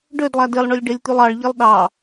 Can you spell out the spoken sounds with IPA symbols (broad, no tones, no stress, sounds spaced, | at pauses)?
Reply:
ɖ ø d lˠ æ d e lˠ ɳ ø lʲ ɖ e lʲ t̪ y lˠ ɑ ɭ ʎ e lˠ ɗ ɑ